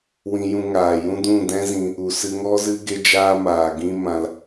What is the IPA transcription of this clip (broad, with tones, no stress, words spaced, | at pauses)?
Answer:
wĩ˧jũ˧ŋaː˨jũ˦ dũ˦˨dɛ̃˦zĩ˧ | u˨sɨ˧ŋɔ˦zɨ˦ ɡe˦d͡ʒaː˦maː˨ɡĩ˦ mã˦l